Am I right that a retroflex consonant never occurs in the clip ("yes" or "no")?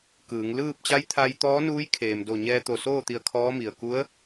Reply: yes